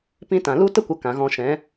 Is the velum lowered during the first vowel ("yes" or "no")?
yes